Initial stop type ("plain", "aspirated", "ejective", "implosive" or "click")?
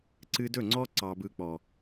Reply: click